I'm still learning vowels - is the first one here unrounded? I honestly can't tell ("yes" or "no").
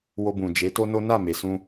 no